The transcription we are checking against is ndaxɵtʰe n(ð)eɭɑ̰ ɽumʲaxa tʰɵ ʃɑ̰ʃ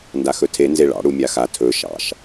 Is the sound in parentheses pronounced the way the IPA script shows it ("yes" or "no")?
no